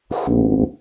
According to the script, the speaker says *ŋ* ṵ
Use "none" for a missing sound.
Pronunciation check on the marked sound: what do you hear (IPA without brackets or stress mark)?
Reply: x